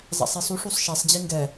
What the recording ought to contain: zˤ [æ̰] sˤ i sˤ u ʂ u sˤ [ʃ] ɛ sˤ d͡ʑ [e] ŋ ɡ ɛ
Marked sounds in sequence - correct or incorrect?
correct, correct, incorrect

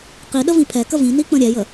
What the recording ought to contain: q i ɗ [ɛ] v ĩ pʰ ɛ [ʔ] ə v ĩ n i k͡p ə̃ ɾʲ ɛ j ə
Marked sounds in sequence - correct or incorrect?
incorrect, incorrect

